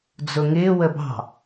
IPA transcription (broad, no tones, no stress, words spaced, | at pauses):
d͡zʊŋɪː wəbɑ̤